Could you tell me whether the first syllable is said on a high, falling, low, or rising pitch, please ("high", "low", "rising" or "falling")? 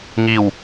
low